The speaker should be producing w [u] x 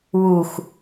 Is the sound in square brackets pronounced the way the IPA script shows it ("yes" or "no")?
yes